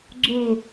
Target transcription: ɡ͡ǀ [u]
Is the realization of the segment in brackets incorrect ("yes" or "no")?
yes